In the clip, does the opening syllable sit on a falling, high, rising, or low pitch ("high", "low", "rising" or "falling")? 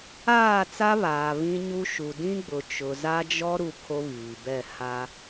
falling